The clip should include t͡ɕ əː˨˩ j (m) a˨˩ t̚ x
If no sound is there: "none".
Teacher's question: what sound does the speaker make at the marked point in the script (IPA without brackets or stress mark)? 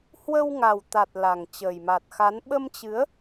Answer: m